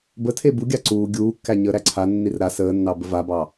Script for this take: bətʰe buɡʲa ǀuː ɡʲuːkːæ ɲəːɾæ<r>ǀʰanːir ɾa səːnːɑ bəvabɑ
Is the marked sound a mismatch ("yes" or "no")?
yes